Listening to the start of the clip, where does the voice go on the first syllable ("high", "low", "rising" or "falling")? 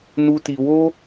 high